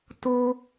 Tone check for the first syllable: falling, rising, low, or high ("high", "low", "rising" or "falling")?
high